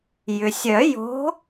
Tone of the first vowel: low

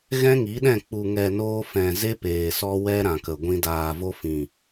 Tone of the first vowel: high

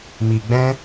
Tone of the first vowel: low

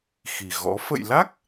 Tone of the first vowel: low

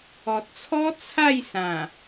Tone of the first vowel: low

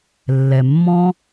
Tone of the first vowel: low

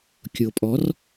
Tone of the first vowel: low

